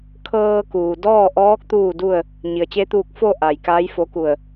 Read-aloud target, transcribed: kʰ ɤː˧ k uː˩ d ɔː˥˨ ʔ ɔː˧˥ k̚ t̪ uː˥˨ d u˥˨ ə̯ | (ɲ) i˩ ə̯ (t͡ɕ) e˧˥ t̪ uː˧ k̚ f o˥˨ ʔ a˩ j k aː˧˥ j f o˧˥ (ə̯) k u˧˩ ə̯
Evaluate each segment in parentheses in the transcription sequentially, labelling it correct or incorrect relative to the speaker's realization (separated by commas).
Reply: correct, correct, incorrect